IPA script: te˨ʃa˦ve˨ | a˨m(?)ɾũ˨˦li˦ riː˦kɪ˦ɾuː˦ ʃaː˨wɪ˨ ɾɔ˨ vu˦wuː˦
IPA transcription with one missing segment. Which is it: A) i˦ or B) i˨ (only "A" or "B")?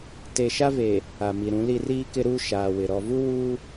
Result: B